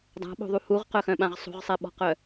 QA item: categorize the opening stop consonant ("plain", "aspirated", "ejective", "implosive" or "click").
plain